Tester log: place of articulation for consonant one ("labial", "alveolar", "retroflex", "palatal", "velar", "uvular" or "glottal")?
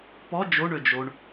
labial